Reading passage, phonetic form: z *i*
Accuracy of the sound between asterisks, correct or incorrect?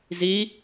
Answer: correct